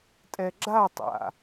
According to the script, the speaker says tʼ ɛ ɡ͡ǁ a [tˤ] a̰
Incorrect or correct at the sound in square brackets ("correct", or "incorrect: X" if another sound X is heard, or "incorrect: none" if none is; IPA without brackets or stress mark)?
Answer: correct